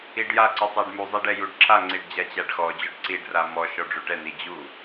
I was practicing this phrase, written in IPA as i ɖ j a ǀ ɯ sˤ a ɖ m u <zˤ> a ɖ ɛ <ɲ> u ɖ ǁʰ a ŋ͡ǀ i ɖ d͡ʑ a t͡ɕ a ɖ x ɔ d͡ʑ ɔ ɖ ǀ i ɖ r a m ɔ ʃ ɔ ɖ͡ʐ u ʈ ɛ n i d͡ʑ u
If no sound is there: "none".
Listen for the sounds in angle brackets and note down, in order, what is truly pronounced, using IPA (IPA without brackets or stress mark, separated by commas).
zˤ, j